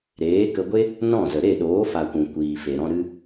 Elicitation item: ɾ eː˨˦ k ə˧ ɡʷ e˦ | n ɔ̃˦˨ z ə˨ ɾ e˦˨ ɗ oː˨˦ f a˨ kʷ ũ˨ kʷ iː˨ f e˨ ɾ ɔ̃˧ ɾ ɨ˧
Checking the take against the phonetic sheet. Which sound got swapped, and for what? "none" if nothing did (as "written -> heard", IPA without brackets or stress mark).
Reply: none